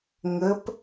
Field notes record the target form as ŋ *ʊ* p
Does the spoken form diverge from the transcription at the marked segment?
yes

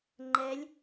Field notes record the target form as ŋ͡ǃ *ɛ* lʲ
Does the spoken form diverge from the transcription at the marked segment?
no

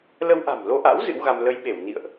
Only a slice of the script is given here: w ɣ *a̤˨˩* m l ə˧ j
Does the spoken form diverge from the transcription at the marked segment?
yes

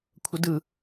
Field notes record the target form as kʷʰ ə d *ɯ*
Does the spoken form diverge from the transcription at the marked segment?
no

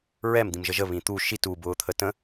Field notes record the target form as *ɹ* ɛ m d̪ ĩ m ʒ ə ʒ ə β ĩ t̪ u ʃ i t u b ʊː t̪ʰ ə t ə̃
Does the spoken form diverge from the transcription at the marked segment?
no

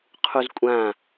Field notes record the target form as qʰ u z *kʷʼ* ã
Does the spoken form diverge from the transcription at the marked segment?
no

